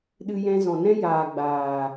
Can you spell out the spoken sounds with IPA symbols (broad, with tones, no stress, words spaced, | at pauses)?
ɗɨ˧jɛ̃˧zɔ̃˨nɛ̃˦ jaː˨ ɡ͡baː˨